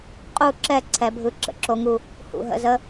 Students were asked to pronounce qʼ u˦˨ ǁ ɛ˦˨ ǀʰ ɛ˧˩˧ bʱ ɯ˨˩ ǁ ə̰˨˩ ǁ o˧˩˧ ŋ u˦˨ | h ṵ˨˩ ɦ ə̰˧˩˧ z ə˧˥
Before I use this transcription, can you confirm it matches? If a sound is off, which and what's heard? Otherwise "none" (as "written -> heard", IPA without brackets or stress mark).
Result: none